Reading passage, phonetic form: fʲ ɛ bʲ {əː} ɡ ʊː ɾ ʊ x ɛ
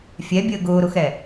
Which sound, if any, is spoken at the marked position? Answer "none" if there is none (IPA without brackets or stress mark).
əː